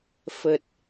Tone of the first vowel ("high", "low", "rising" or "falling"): low